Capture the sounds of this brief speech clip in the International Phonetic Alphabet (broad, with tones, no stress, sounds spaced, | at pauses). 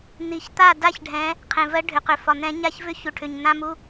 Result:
n̪ i˨˩˦ ç t̪ a˥˩ d a˥˩ ç ɖʱ ɛ̃˨˦ | qʰ ẽ˩ v ɜ˨˦ ɖʱ ʏ˩ q ʏ˩ f ɒ˩ n̪ ɛ̃˨˩˦ ɲ a˥˩ ç v ʏ˥˩ ç u˩ ʈʰ ʏ˩ ɲ n̪ ã˧˥˧ m u˧˥˧